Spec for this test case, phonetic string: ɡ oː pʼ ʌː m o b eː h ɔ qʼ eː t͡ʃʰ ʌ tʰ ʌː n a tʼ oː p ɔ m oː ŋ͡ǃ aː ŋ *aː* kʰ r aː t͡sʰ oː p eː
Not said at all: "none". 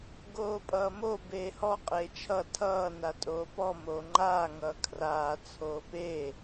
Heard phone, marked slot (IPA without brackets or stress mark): ʌː